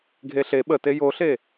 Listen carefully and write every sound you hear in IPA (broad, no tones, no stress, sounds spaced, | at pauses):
ɡʱ e ɬ e ɓ ə t e j o ɬ e